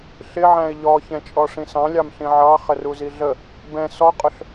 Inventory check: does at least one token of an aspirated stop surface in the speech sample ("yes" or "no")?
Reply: no